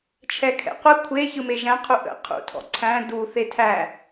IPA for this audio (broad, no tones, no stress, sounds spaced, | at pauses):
t͡ʃʰ ɛ kʰ ɛ̰ qʷ ɘ kʷʰ e ç ɯ m e ʒ æ̃ qʰ u ʔ ə̰ qʰ ṵ tʰ ɔ̰ ǀʰ æ̃ d u θ e tʰ æ